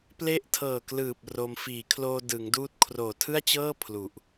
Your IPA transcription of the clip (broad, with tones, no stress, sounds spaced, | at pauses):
p l e˦˥ ʔ tʰ ɤː˨˩ k l ɯː˨˩ p̚ r o˧ m f iː˩˦ kʰ l oː˧ d ɯ˩˦ ŋ d uː˦˥ t̚ kʰ r oː˨˩ tʰ ɯ˥˩ a̯ t͡ɕ ɤː˥˩ pʰ l u˨˩ ʔ